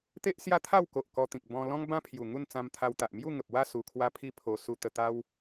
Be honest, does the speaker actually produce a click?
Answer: no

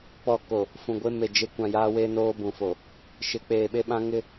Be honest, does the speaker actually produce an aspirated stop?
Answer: no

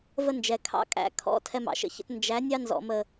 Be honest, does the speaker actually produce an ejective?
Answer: yes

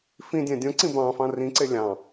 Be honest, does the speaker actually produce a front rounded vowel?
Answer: no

